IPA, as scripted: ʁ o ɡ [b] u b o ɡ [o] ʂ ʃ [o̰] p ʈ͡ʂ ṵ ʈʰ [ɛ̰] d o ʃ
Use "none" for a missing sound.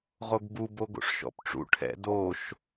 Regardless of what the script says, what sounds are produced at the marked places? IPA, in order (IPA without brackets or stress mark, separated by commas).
b, o̰, ɔ̰, ɛ̰